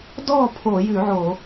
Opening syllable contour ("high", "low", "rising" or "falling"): falling